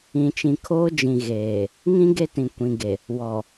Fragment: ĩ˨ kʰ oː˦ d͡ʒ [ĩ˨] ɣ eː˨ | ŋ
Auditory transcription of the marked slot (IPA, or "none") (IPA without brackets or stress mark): ĩ˨